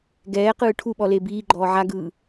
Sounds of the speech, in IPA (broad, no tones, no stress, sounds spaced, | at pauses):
ɡ ɛː q ɯː ʈʰ u ɓ ɔ l e b iː ɡ͡ǃ ɔː ʕ a ɡ ɯː